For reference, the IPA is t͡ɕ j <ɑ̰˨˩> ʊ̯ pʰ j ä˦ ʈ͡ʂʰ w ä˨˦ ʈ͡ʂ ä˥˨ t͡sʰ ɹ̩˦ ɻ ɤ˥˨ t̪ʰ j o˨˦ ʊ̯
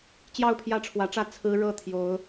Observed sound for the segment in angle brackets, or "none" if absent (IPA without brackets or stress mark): ɑ˥˨